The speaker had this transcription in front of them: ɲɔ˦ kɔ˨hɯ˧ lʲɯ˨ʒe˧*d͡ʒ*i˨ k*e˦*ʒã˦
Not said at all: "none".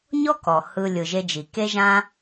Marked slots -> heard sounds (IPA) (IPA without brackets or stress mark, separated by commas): d͡ʒ, e˦